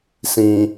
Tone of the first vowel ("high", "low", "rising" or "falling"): low